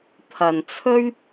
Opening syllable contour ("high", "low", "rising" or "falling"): low